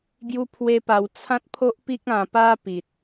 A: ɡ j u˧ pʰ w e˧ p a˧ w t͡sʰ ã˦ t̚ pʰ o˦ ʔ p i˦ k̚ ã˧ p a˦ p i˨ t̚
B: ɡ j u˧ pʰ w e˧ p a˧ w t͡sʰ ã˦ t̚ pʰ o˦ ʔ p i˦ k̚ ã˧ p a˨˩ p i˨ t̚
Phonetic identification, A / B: A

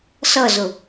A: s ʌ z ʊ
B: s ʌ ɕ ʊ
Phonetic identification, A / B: A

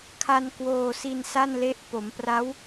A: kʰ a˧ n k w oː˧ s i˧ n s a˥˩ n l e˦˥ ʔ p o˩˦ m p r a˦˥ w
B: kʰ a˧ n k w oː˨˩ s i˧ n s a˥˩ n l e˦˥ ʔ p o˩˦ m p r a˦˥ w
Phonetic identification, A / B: A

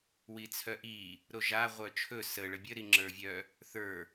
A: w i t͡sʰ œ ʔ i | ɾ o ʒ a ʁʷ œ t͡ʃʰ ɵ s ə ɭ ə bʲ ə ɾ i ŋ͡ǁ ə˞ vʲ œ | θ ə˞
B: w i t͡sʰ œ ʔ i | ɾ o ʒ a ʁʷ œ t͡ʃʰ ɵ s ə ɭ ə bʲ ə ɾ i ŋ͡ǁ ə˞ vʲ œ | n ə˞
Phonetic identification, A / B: A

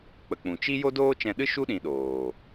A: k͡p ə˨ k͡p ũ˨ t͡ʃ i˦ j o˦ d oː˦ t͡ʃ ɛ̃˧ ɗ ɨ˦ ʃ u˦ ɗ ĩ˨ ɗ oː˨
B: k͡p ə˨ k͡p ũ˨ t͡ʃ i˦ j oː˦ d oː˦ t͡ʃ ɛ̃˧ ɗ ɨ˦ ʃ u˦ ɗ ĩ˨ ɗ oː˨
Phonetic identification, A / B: A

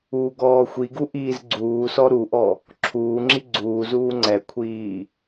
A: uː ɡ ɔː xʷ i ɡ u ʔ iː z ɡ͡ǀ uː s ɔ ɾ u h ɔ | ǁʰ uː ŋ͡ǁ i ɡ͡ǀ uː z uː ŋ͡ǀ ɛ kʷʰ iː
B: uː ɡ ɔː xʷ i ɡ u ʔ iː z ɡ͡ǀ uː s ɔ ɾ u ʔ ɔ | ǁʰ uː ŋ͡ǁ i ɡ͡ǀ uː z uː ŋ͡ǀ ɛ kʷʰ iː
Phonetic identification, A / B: B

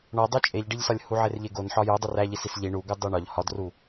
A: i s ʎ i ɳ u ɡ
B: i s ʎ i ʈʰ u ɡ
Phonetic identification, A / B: A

